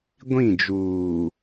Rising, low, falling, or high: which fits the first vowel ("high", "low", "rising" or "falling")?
falling